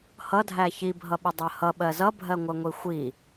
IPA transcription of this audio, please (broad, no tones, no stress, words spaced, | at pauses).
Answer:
hʌdʱæ çibʱʌɓədˤɜ hʌɓɜ zʌbʱɜŋʷɜŋʷi xʷi